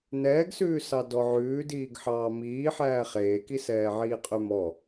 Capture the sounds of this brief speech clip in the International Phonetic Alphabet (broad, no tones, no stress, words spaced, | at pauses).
nɛːɡsʉːsɑ dɔʕʉːdiːɡ ħɑːmiː ħæːχeːki sɛːʕiːqʼymɔ